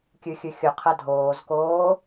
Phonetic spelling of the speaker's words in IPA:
kʲ ʉ xʲ ʉ xʲ ɵ qʰ ɐ dʱ oː z k oː

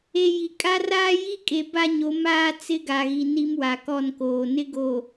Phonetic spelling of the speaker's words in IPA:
e˨ j i˨ kʼ a˦ r aː˦ j i˦ kʼ e˨ b a˦ ɲ o˨˦ m aː˦ t͡s ɪ˦ ɡ a˨ ɣ i˨ n i˦ m w a˨ k ɔ˦˨ n k oː˨ n ɪ˦ ɡ o˨

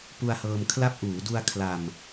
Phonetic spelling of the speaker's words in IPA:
p u˧ a̯ h ɤː˧ m kʰ l a˦˥ p̚ ʔ uː˩˦ d u˧ a̯ kʰ l a˧ m

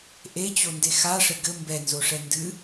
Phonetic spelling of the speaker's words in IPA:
ʔ e t͡ɕ o n d e x a ʂ ɘ ɡ ɘ m b ɛ n z o ʂ ɛ n d ɨ

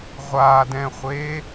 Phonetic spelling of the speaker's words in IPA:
ʁʷ a d ɛ̃ χʷ e

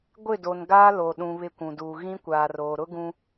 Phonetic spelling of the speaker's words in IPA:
ɡʷ ɪ˦˨ d o˨ n ɡ aː˦ l o˨ ɗ ũ˨ β ɪ˦˨ kʷ ũ˨ d uː˨ ɣ ĩ˦ kʷ aː˨ r oː˨ ɾ ʊ˦ ɡ ũ˦

